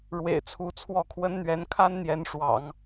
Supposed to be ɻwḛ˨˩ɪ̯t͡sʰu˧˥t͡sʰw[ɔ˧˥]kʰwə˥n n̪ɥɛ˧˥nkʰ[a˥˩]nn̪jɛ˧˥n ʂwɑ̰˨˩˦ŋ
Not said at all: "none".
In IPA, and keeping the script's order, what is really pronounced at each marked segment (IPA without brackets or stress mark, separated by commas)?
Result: ɔ˥˩, a˥